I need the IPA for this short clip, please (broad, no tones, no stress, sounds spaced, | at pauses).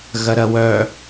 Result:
ɣ ɐ ɾ ɐ w œ